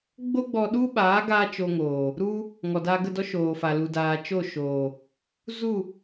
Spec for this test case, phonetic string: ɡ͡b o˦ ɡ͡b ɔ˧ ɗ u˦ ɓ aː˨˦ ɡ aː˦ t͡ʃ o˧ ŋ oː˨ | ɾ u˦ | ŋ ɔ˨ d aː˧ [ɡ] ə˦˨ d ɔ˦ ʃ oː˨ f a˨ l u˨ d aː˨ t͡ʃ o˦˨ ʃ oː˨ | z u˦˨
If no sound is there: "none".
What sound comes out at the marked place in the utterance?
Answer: ɡ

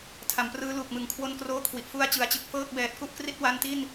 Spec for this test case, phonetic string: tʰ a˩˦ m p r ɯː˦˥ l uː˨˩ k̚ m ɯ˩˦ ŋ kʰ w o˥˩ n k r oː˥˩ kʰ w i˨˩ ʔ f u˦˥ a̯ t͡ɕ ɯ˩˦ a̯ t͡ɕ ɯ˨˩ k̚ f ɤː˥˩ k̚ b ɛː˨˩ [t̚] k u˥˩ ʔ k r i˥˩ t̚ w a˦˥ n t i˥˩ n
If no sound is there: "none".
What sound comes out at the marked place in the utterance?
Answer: t̚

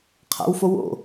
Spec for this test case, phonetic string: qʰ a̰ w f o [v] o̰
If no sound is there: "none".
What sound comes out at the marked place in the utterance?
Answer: w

